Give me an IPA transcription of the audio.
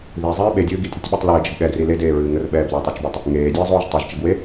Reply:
ð i zˤ ɨː ɓ e dʲ ɨː ɡ i tʲ ɾ ɨ tʲ ɓ ɯ tˤ l ɨː d͡ʒ ə ɡ ɠ ɛ d r i l e d eː ɹ ɨː ŋ ə r ɓ ɛː b l ɨ tˤ ɑ t͡ʃ b ɯ tˤ | ŋ eː dʲ ɨː zˤ oː ʒ tˤ i ʒ t͡ʃ ə ɡ w e

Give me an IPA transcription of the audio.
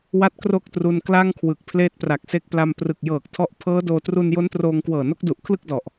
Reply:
w a˥˩ t̚ k r o˥˩ k̚ t r u˧ n k l a˥˩ ŋ kʰ w ɯ˨˩ k̚ pʰ l eː˦˥ t̚ p r a˨˩ k̚ s e˦˥ k̚ p l a˧ m p r ɯ˨˩ k̚ j ɤː˨˩ k̚ tʰ ɔ˦˥ ʔ pʰ ɤː˦˥ d oː˧ t r u˧ n j o˦˥ n t r oː˧ ŋ k w ɤː˨˩ n o˦˥ k̚ d u˨˩ ʔ kʰ l ɯ˥˩ k̚ d ɔ˨˩ ʔ

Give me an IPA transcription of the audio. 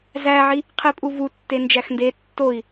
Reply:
z æ ʕ i | qʰ i pʼ u v u tː e n d͡ʒ æ x n d e tː o i̯

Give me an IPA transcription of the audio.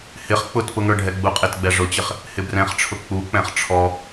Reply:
h ɪ χ k͡p ʊ t p ʊ ŋ ə˞ ɖʱ ɛ ɡ͡b u qʼ ɪ t ɡ͡b ɛ ʐ ʊ t͡ɕ ɪ χ | h ɪ b r ɛ̃ χ ʈ͡ʂʰ ʊ k͡p u k͡p ɛ̃ χ ʈ͡ʂʰ ɔ

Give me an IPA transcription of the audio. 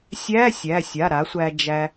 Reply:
sʲ æ˧˥˧ sʲ æ˩˧˩ sʲ a˩˧˩ ɾ a˩˥ sʷ æ˧ d͡ʒ æ˧

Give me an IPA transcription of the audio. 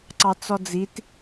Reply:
ǀ ɑ t͡s ɔ d͡z i t

